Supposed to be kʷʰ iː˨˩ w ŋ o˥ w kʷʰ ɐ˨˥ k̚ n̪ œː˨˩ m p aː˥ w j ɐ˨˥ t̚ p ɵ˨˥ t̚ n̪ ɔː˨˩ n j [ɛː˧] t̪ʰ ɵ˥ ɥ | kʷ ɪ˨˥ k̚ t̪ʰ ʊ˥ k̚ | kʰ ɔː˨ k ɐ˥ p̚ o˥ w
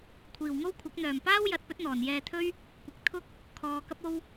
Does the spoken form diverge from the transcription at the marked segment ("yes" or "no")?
no